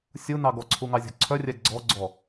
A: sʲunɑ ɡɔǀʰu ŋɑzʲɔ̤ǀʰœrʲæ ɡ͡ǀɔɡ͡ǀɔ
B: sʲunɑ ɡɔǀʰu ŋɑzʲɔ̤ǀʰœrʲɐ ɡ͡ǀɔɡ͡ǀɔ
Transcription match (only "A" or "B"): A